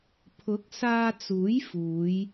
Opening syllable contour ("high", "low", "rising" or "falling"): rising